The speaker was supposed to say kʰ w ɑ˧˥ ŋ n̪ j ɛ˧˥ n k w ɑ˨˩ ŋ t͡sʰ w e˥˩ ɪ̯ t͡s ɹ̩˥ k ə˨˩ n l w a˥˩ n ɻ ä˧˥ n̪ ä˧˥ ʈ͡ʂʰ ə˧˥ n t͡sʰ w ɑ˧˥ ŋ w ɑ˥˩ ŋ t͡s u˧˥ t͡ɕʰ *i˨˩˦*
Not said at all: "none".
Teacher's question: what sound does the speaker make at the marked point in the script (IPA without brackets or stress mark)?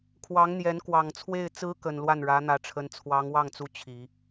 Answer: i˨˩˦